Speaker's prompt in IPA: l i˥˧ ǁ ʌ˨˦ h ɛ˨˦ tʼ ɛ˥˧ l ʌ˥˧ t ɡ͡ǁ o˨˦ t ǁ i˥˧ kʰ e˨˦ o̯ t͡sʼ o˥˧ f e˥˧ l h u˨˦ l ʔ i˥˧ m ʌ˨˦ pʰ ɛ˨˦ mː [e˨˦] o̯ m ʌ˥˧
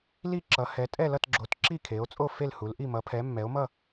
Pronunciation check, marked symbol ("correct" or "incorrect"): incorrect